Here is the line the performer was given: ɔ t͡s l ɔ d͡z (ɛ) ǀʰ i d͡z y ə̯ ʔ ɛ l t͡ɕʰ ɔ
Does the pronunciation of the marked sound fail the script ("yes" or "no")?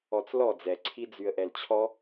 no